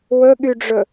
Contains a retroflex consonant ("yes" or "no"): yes